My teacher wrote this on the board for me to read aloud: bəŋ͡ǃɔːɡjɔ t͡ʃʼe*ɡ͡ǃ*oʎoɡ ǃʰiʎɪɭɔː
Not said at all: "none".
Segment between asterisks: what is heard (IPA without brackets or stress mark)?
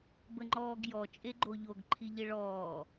ɡ͡ǃ